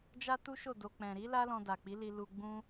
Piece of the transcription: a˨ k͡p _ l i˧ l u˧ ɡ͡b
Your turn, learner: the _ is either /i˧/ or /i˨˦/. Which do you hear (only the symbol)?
i˨˦